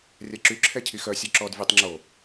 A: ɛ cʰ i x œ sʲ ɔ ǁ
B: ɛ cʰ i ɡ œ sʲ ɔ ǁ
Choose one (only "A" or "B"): A